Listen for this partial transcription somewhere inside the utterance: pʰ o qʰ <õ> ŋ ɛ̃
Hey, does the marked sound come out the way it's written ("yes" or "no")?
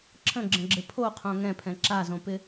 yes